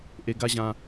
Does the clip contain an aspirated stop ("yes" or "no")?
no